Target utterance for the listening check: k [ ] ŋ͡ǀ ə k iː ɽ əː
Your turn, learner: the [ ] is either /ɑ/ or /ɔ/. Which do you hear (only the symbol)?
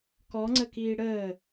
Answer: ɔ